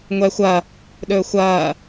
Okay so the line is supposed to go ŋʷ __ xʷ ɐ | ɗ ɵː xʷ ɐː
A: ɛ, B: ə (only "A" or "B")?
A